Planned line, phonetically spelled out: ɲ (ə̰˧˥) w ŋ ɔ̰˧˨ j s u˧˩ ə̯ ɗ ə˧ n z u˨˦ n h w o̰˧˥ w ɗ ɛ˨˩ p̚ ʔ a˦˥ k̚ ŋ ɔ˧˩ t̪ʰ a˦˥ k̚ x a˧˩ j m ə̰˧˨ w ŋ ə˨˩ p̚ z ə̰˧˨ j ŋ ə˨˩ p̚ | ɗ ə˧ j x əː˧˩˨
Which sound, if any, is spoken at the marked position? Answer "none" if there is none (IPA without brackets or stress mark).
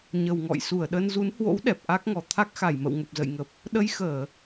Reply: ə˨˩